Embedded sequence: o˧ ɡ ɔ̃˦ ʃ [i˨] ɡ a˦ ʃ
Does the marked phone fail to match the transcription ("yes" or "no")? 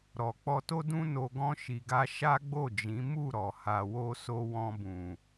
yes